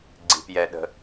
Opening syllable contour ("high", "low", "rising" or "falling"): low